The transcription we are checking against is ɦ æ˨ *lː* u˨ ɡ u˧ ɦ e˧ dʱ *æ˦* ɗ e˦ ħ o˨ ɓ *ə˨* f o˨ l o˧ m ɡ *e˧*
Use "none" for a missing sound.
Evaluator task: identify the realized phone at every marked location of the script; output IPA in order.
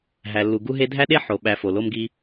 lː, æ˦, æ˨, i˧

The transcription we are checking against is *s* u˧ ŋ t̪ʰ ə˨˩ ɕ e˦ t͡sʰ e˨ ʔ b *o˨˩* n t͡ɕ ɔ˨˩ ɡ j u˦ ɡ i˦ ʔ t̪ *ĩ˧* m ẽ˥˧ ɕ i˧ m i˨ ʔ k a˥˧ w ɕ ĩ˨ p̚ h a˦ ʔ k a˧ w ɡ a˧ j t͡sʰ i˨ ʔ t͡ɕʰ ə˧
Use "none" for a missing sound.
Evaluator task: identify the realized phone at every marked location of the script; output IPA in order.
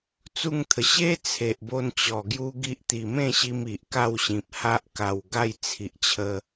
t͡s, o˧, i˧

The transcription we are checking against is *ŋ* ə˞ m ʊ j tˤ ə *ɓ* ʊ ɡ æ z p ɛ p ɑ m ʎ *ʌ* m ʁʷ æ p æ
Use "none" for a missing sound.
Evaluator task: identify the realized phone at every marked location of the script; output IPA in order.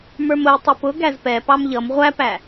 m, p, ʌ

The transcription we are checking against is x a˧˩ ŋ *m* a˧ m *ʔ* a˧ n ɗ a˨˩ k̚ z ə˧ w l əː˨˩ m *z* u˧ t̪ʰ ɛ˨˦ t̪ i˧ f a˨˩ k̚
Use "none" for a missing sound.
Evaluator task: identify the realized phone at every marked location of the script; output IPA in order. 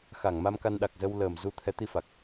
m, k, z

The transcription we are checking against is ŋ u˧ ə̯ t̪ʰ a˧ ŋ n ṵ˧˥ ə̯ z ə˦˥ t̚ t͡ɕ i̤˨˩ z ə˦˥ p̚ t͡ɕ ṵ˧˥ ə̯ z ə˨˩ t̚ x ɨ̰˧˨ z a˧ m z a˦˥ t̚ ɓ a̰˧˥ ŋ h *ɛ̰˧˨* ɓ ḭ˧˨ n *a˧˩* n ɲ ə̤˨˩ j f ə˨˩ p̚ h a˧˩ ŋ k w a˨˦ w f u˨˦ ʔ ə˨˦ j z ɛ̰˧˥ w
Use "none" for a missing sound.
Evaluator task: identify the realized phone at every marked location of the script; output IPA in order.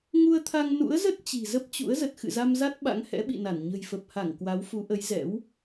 ɛ̰˧˥, a˧˩

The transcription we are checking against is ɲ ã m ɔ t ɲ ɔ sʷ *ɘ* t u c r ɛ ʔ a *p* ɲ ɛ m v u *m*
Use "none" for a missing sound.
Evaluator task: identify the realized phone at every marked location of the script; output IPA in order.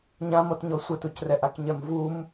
ɘ, k, m

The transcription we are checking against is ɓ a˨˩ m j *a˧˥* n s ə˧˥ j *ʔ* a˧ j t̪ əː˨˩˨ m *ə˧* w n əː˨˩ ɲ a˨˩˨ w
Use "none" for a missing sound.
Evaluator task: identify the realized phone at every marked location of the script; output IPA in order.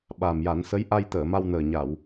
a˨˩˦, ʔ, a˧

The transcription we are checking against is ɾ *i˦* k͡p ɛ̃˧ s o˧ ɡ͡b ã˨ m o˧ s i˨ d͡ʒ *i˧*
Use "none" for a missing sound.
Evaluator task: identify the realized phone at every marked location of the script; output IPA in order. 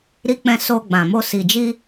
i˧, i˧

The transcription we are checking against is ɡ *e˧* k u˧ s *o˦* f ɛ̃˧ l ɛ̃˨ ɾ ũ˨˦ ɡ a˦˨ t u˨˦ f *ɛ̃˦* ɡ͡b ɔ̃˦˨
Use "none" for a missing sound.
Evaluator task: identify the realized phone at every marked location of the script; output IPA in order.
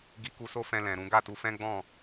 i˧, o˦, ɛ̃˦

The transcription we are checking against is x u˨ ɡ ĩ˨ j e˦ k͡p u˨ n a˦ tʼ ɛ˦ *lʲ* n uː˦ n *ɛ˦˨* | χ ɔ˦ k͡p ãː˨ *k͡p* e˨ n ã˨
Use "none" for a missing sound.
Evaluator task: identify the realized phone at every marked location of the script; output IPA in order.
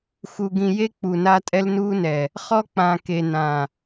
l, ɛ˨, k

